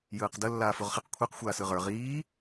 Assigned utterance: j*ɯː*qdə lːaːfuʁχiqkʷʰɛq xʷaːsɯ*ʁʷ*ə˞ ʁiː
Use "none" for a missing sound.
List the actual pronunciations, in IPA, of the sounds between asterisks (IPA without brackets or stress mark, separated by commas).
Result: ɯː, ʁ